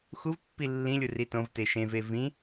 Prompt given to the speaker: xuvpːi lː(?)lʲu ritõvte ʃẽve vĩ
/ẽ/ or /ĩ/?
ĩ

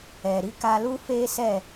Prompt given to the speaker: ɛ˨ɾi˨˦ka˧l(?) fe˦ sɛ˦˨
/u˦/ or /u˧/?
u˦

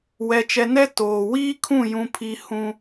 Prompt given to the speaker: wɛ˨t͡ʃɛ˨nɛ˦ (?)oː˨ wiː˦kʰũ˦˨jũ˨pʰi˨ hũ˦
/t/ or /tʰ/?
t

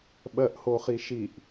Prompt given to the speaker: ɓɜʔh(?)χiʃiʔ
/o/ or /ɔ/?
o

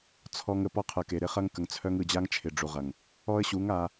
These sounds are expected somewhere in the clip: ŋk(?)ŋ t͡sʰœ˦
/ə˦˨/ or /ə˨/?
ə˨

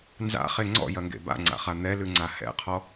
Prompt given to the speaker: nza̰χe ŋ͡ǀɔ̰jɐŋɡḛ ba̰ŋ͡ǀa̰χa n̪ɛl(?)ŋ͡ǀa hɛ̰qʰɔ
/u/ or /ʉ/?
ʉ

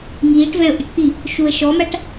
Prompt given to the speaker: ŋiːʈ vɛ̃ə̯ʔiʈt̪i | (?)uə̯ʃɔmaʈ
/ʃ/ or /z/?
ʃ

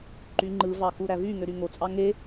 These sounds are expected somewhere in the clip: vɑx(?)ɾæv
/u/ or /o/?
u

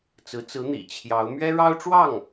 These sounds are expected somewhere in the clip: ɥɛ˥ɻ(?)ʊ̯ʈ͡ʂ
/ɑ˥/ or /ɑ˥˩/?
ɑ˥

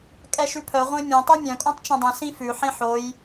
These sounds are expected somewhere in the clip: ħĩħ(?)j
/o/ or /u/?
o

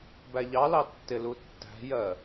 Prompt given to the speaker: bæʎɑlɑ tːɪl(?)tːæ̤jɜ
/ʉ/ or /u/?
u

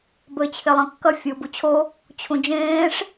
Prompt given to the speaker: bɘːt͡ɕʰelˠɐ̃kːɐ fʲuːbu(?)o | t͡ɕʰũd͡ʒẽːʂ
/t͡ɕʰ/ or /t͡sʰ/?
t͡ɕʰ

